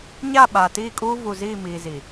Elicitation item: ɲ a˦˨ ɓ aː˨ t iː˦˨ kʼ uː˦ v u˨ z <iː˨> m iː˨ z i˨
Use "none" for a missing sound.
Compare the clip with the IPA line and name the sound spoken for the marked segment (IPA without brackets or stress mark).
iː˦˨